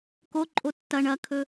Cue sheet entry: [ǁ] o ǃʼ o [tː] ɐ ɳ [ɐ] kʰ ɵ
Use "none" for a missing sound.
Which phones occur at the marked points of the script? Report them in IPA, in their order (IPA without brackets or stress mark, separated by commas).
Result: k, tː, ɐ